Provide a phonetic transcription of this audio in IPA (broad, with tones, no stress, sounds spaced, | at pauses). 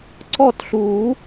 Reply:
ǀ ɔ˥˨ t ɬ u˨˩˦